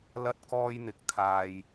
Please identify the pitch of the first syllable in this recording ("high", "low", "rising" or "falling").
high